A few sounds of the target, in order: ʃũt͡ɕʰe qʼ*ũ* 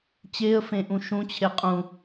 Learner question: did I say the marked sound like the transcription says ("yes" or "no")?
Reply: yes